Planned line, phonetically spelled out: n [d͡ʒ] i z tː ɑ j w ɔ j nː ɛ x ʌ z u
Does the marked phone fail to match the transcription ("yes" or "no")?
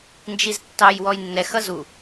no